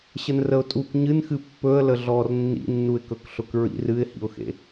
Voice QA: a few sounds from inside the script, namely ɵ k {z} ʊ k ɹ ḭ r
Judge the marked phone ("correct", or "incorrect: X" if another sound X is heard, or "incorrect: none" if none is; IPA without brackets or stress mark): incorrect: ɬ